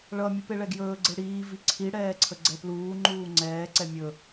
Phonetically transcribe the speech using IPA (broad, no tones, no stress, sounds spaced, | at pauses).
ɭ ʌ mʲ u p e ɭ ɛ ɡ j ɵː ɡ͡ǀ e ɽ iː v i ǀʰ i ɽ ɛː ǀʰ ə ɡ͡ǀ ɛ p l uː ŋ͡ǃ uː ŋ͡ǀ ɛː ǀ ɛ mʲ ɵ